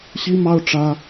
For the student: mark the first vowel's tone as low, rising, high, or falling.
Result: high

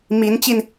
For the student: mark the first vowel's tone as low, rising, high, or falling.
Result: rising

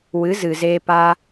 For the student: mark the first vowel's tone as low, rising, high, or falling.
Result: rising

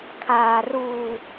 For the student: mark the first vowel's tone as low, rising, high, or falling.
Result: low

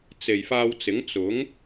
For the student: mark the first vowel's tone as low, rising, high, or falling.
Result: low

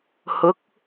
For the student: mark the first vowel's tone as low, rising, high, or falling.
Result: rising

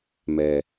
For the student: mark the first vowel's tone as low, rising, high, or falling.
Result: low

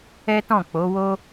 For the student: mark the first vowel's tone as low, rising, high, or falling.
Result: high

